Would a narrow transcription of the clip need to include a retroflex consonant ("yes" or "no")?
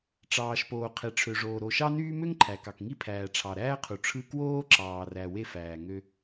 yes